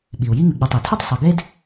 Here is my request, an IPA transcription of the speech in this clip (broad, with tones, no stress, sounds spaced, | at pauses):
ɓ i˩ u̯ j i˦ ŋ ʉ˩ ɡ͡b ɐ˨ tˤ e˩ tʰ ʉ˥ tˤ sˤ ɐ˨ ɡ e˦ d